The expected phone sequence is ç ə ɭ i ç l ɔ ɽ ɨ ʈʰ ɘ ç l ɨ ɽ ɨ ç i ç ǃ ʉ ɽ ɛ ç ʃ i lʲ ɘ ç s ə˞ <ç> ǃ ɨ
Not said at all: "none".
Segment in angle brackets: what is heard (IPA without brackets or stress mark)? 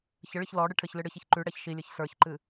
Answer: ç